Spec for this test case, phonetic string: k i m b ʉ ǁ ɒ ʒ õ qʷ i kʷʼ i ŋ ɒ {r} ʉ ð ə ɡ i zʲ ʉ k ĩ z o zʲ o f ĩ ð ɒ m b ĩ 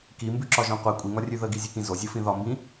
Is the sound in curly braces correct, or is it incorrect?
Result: incorrect